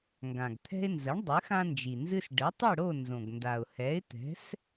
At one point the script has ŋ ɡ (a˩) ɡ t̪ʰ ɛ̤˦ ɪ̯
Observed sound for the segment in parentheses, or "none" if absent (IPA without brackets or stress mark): ã˩